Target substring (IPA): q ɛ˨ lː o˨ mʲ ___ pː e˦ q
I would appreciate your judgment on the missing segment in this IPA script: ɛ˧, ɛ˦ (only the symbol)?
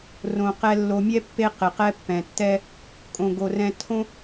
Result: ɛ˧